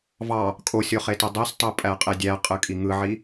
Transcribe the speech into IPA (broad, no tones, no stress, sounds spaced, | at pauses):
v ɑ | kʼ o sʲ o χ e t ɯ dˤ e s tˤ o pʼ æ qʼ e dʲ æ qʼ ɯ kʼ i ŋ ɯ ʕ i